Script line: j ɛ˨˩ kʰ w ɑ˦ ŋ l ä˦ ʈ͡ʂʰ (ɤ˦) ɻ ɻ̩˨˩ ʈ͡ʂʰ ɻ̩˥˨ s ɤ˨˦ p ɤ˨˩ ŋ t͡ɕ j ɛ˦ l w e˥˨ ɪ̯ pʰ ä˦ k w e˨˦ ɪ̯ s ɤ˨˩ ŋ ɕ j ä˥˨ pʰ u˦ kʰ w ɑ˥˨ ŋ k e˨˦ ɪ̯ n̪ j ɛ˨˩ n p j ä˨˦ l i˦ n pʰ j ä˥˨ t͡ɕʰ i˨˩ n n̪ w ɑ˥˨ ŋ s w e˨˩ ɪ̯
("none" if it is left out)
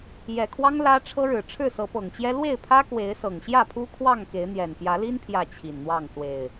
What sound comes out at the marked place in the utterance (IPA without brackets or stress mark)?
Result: ɤ˦